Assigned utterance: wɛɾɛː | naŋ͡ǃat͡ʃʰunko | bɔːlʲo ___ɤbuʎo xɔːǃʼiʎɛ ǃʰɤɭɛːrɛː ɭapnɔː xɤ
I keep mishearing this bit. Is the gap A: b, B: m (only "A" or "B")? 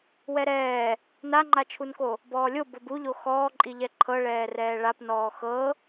A